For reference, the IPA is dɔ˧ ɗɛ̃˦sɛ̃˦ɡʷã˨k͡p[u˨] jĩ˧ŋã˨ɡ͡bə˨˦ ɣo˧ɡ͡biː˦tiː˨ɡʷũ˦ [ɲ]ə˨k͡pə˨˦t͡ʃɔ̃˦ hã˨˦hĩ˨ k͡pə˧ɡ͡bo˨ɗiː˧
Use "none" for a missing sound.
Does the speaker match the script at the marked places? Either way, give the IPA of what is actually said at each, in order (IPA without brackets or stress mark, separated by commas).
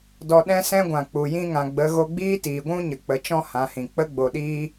u˨, ɲ